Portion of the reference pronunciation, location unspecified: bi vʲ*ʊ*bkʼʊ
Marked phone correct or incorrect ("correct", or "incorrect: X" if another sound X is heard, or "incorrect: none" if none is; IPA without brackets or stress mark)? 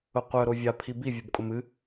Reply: incorrect: u